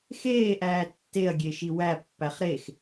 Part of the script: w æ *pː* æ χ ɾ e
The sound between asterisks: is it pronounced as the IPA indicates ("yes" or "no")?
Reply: yes